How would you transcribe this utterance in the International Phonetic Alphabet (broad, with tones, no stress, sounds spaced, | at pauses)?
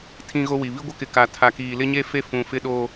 tʰ ĩ˦ ɣ o˦ w i˨ β i˦ ɡʷ ɪ˦ k ɪ˨ k a˨ tʰ a˨ k iː˨ l ɪ˦ ɲ e˦ f e˦ f ũ˨ f ɪ˦ ɗ oː˦